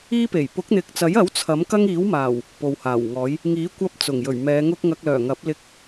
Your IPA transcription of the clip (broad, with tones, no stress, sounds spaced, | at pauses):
iː˥ p e˨˩ j p ʊ˨˥ k̚ n̪ ɪ˨ k̚ t͡s ɐ˨˥ j ɐ˨˥ w t͡sʰ ɐ˨˥ m k ɐ˥ ŋ iː˨˥ w m aː˨˩ w | p o˨ w h aː˨˩ w ŋ ɔː˨˥ j | ŋ iː˨˥ kʷ ɐ˥ p̚ t͡s ʊ˨˩ ŋ j ɵ˨˩ ɥ m ɛː˨˧ ŋ ʊ˥ k̚ ŋ ɐ˧ k̚ l œː˨˩ ŋ ɐ˨˥ p̚ l ɪ˧ k̚